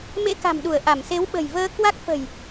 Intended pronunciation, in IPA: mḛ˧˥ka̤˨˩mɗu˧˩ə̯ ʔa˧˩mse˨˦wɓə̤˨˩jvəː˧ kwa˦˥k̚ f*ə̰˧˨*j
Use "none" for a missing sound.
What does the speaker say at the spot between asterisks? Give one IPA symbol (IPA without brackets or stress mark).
ə̤˨˩